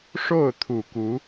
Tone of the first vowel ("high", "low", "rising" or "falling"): falling